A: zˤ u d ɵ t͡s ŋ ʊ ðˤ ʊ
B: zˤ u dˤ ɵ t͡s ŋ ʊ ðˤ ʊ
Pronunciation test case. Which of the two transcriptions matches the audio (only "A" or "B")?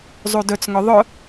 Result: A